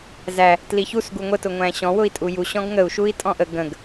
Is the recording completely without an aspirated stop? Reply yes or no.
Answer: yes